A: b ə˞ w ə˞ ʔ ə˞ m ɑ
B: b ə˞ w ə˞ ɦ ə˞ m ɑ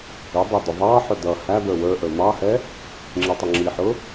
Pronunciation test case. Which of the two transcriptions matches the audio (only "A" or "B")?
A